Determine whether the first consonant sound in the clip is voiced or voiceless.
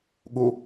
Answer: voiced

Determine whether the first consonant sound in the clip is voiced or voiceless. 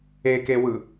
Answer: voiceless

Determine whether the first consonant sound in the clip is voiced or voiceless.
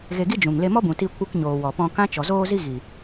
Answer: voiced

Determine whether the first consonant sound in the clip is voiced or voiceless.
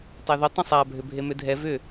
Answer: voiceless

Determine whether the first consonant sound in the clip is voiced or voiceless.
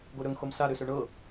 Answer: voiced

